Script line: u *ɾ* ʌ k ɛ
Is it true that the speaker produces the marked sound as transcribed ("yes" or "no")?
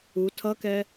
no